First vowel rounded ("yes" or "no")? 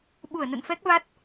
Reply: yes